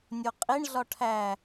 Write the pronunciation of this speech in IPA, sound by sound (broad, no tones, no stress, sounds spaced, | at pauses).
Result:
nʲ o qʼ i ɳ ɮ ɒ ʈʰ æ